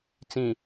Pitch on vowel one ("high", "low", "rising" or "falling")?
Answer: low